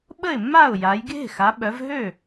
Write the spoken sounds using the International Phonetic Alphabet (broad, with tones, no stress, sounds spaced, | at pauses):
ɓ ə˥˩ ɪ̯ mː a˥˩ ʊ̯ j a˩˧ j ɡʱ e̤˥˩ x a˩˧ ɓ œ˩˧ v ɦ ø˥˩